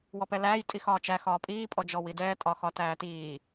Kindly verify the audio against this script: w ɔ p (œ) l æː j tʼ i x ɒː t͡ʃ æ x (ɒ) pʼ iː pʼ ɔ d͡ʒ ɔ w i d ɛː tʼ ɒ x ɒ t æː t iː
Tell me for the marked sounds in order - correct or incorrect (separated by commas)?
incorrect, incorrect